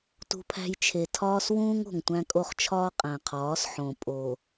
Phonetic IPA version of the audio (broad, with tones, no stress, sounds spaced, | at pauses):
t ṳ˦ pʰ æ̤˦ j t͡ʃʰ e˨ tʰ ɒː˦ s w ũː˦ ŋ o̤˨ ŋ tʷ æ̃˦ kʼ o˦ χ t͡ʃʰ ɒː˦ qʼ æ̃˨ qʰ ɒː˨˦ s ħ õ˨ pʼ o˨